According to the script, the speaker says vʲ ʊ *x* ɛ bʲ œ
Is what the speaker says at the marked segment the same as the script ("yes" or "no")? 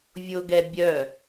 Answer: no